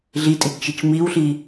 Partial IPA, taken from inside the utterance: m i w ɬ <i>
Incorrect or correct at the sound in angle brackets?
correct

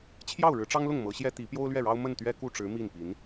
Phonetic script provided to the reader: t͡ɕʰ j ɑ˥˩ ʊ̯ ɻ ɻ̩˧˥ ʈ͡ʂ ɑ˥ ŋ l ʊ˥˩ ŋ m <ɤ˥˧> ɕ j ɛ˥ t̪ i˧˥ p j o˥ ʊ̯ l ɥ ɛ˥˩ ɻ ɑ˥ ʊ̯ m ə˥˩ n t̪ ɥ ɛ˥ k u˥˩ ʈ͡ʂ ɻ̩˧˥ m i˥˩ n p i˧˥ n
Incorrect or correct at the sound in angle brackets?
incorrect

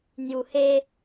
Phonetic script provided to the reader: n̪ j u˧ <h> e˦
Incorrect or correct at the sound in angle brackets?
correct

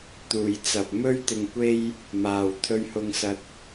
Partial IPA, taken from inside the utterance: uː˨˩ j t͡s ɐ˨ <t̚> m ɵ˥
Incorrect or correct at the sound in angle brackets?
incorrect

